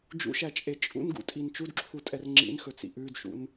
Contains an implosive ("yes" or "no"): no